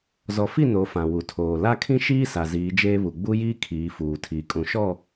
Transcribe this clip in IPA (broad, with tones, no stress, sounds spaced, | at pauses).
z ɔ˨ f i˦˨ n o˨˦ f ã˨ w u˨ tʰ oː˨ l a˦ kʰ ĩ˦ ʃ iː˦ s a˨ z iː˨˦ d͡ʒ eː˦ β u˨ ɡ͡b u˦ j iː˦ kʰ iː˨˦ f uː˨ tʰ iː˨ kʼ ũ˨˦ ʃ ɔ˦˨